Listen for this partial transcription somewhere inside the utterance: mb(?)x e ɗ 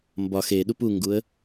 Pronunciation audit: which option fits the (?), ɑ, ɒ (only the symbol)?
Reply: ɒ